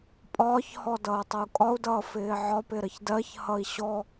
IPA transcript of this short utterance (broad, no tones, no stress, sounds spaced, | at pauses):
pʼ ɒː ç h ɔ d ʌː tˤ ʌ u̯ kʼ ɒ u̯ d ʌː f ɪː ʕ ɒ p ɪ ɾ ə ç d ɜ ç h ʌ i̯ ɕ ɔ